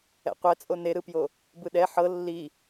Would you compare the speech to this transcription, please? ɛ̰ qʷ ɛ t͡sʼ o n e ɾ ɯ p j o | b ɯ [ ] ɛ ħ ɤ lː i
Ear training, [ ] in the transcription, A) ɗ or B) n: A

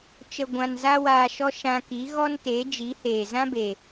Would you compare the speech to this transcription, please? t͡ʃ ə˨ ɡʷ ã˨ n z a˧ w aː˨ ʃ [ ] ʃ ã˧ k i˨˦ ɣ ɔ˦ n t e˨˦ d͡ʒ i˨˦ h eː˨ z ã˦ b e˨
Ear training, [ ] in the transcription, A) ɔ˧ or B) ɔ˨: A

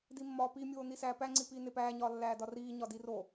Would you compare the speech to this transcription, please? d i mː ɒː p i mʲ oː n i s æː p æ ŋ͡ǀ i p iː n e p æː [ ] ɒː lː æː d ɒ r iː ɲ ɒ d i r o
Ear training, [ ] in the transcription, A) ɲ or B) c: A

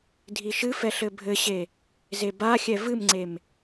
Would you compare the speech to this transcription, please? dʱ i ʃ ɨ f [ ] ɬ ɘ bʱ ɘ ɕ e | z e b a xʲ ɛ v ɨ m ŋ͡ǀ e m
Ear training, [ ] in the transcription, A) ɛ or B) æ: A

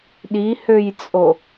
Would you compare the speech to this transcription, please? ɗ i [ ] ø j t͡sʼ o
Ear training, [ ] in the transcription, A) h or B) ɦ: A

